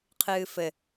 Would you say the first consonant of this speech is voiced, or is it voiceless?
voiceless